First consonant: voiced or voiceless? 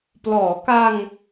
voiceless